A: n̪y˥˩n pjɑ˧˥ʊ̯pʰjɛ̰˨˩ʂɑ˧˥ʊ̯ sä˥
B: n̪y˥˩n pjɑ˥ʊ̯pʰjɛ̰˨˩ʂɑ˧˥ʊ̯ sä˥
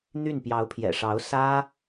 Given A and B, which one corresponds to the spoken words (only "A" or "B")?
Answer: A